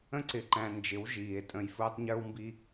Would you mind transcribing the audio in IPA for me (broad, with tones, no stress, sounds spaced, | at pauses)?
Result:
ə̃˧ ǀ ɪ˨ ǃ æ̃˨ n d͡ʒ ɪ˨˦ w ʒ iː˨ e̯ tʼ ə̃˧ j f ʊː˦ tˤ ɲ ə˞˦ w m b i˦